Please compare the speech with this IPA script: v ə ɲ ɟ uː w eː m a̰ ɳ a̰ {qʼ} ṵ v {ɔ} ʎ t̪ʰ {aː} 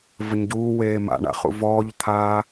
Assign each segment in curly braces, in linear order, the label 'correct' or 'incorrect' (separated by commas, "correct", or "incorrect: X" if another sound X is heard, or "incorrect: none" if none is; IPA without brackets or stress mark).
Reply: incorrect: χ, incorrect: ɔː, correct